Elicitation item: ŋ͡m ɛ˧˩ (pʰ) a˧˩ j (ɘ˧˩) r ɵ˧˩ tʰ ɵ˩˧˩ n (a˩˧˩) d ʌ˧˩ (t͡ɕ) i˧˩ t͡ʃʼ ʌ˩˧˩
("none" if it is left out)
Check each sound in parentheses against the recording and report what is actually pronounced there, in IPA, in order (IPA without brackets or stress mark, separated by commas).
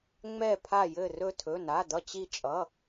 pʰ, ɘ˧˩, a˩˧˩, t͡ɕ